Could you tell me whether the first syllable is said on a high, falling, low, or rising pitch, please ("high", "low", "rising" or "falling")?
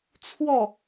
falling